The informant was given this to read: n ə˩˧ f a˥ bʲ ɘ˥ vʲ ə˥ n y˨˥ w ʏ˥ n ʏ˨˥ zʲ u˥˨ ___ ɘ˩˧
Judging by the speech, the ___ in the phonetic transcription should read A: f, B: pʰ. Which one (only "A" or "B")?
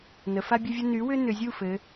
A